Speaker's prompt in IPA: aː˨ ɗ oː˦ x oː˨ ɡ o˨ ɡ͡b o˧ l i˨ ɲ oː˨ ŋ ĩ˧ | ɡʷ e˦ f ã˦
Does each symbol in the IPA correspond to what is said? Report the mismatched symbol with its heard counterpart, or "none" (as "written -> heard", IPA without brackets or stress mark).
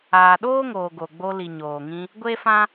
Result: x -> ŋ